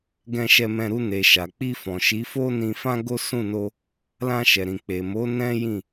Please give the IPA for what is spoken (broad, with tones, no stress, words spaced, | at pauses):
ɡɛ̃˧ʃɛ˧mɛ̃˧ ɾu˧ne˨ʃa˨ k͡pi˧fɔ̃˨ʃi˨˦ fo˦nĩ˧fã˦ɡo˦ sũ˦˨no˧ | lã˧ʃɛ˨ɾĩ˨ k͡pe˨mo˨˦ nɛ̃˦jĩ˦˨